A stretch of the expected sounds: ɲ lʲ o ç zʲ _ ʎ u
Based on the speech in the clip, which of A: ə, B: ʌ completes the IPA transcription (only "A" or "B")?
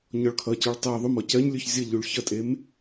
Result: B